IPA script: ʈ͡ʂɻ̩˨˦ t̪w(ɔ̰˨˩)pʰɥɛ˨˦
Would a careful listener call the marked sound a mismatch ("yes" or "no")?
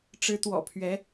no